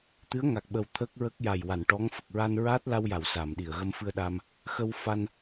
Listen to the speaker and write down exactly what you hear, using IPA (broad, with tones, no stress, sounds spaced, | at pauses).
t̪ ɨ˧˥ ə̯ ŋ a˨˩ k̚ ɓ ə˨˩ w t̪ʰ ə˦˥ k̚ ɹ ə˦˥ k̚ j a˨˩ j w a˨˩˨ n ʈ ɔ˧˥ ŋ f ə˨˩ k̚ ɹ a˧ n ɹ aː˦˥ t̚ l a˧ w j a˨˩˨ w s aː˨˩˨ m ɗ i˨˩˨ ə̯ ɣ ə˧ m f ɨ˧ ə̯ ɗ aː˧ m | x ə˧ w f a˧ n